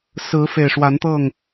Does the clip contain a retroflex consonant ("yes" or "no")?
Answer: yes